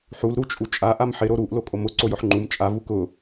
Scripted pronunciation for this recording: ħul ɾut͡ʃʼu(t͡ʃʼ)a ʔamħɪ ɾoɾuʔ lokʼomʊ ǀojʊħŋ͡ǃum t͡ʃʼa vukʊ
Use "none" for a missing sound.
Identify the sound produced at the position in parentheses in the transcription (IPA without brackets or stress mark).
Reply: t͡ʃʼ